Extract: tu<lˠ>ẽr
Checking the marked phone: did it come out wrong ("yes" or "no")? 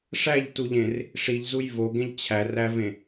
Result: yes